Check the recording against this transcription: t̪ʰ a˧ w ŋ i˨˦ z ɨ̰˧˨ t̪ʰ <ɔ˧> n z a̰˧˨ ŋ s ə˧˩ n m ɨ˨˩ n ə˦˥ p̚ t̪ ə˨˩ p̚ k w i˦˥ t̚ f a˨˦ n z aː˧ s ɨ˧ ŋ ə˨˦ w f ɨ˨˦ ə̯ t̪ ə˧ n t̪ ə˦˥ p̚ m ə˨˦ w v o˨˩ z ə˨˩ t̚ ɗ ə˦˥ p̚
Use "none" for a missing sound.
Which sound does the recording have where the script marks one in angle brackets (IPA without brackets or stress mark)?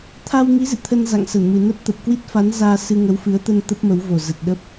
ə˧